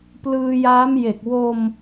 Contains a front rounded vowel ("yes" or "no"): no